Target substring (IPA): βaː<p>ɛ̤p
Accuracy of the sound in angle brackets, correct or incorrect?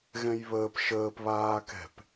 incorrect